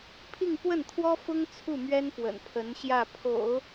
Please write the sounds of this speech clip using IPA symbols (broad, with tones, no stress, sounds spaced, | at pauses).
pʰ i˥˧ ŋ p w ə˥˩ n t̪ʰ w ɔ˥ f ʊ˥ ŋ t͡sʰ u˥˩ m ɥ ɛ˥ n p w ə̰˨˩ n pʰ ə˧˥ n ɕ j ä˥˩ pʰ o̰˨˩˦ ʊ̯